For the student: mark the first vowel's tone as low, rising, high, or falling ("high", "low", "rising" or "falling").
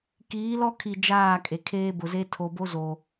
rising